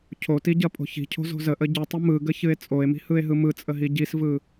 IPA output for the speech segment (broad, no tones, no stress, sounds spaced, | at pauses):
cʰ o t i ɟ ɐ pʼ o̤ ç i̤ cʰ o̤ z o̤ z ə ʔ ə ɟ ɯ tˤ ə m ɯ ɡ ə ç ɨ e̯ t͡sʼ o e̯ m i̤ h ɯ e̯ ɦ ɯ m ɯ t͡sʼ ə ɦ i ɟ i s v ɯ